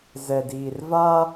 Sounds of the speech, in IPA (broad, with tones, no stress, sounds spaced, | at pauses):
z ɛ˨ d iː˨ r v aː˦